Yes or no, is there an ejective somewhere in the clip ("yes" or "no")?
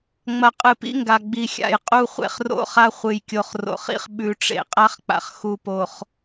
yes